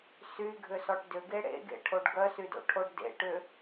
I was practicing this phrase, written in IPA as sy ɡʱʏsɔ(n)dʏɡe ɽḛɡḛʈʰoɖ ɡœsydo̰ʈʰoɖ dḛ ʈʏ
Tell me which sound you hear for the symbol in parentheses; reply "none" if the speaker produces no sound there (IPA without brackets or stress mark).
ʈ